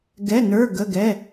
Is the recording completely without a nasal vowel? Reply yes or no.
yes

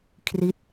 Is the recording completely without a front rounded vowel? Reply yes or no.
yes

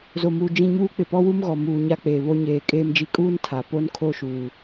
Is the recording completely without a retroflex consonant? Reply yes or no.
yes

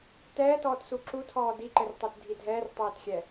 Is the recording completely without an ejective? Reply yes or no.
yes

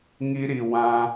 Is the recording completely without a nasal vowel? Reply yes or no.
no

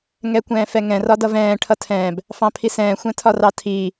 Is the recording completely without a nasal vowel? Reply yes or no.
no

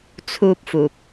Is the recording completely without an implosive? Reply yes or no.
yes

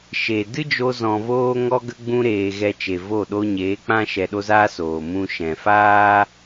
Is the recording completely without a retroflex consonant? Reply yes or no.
yes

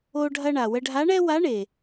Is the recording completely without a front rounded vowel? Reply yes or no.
yes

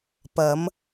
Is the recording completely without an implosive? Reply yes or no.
yes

